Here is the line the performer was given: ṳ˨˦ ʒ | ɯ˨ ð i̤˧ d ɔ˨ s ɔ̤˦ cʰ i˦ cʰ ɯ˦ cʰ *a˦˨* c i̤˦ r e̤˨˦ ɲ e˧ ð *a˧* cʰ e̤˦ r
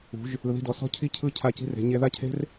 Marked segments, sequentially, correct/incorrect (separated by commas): correct, incorrect